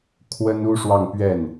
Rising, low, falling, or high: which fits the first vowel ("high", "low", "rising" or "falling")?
high